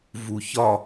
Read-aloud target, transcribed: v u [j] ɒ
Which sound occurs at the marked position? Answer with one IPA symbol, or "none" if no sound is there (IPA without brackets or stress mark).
ç